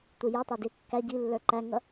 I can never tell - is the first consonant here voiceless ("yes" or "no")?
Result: yes